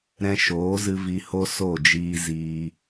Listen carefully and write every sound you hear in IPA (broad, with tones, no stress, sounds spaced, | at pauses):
ɾ ɛ̃˧ ʃ oː˨˦ z ɨ˧ v i˧ h o˦ s o˦˨ d͡ʒ iː˧ z iː˧